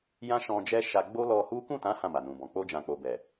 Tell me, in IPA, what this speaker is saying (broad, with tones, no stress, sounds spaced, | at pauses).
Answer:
j ã˦ ʃ ɔ̃˧ d͡ʒ ɛ˦ ʃ a˧ ɡ͡b o˦ l ɔ˧ h u˦ k ũ˦˨ t ã˨˦ h ã˦˨ m a˨ n ũ˨ b ɔ̃˨ k͡p o˧ d͡ʒ ã˨ k͡p o˨ b ɛ˨